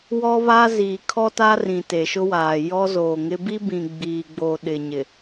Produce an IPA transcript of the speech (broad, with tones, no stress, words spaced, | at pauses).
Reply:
wɔ˦βa˦ ziː˨kʰɔ˦ta˦ rĩ˨te˨ʃʊ˦waː˨ jɔ˦zoː˨ŋɪ˦ bi˦bĩ˨ ɡ͡biː˨ɡ͡bo˨ ɗɪ˨ɲɪ˨